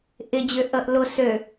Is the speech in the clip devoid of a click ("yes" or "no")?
yes